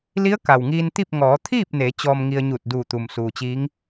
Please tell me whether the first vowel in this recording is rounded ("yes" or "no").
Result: no